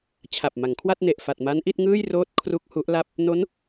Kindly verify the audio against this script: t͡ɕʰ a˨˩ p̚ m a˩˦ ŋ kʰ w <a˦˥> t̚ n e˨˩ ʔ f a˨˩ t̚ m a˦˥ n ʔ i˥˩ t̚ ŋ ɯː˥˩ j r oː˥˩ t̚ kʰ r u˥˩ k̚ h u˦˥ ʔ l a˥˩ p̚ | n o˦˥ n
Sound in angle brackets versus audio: incorrect: a˥˩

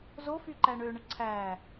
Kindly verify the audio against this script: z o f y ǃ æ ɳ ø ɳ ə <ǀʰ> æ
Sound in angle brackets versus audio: correct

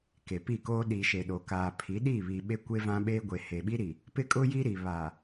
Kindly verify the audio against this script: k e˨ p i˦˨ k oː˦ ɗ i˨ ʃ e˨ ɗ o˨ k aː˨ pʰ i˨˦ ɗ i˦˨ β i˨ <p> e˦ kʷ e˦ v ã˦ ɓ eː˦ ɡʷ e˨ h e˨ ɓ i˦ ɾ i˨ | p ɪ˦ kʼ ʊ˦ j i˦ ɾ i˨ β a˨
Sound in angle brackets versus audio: incorrect: ɓ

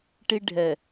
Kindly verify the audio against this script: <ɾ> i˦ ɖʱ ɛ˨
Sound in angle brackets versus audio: incorrect: ʈ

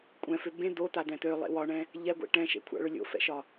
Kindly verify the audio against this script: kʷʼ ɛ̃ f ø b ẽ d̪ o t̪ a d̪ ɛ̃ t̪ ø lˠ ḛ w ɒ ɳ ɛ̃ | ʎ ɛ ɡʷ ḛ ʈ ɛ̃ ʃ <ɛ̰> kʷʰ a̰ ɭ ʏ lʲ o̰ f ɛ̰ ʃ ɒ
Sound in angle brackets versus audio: incorrect: ḛ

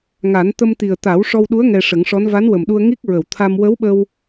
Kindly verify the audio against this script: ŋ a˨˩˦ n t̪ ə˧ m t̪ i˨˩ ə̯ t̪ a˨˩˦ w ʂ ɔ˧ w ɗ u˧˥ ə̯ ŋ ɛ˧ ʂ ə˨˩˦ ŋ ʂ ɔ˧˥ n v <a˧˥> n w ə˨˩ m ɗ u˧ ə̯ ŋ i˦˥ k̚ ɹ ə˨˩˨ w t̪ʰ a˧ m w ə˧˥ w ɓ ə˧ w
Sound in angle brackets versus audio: correct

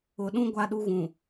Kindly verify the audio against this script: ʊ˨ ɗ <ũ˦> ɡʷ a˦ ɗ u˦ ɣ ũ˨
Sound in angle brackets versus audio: correct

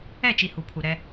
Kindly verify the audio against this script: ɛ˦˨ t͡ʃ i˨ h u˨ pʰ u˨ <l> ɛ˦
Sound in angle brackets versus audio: incorrect: ɾ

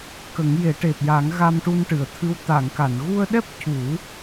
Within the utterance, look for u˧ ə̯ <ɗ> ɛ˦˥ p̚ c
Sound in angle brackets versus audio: correct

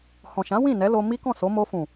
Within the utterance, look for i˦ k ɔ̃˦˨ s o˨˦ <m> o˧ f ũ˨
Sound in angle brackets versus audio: correct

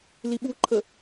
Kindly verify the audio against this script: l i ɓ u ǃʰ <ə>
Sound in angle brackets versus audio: correct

